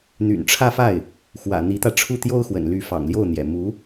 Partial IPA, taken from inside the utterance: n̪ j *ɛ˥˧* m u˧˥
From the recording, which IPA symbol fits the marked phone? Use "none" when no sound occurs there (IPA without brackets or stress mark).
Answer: ɛ̰˨˩